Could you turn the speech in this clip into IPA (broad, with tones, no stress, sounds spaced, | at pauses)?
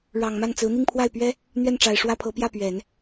ɻ ɑ˨˩ ŋ m a˥˩ n t͡s ɹ̩˧˥ n̪ i˥˧ ŋ pʰ w a˥˩ ɪ̯ p ɥ ɛ˥ | n̪ ɥ ɛ˥˩ n ʈ͡ʂ a˨˩ ɪ̯ ʂ w ä˥ pʰ ɤ˧˥ p j ä˥˩ p ɥ ɛ˨˩˦ n